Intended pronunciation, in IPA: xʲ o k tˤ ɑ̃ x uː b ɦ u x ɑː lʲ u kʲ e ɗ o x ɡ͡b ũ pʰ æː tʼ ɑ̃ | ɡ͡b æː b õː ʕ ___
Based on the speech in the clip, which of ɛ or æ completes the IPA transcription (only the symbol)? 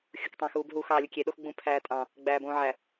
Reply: æ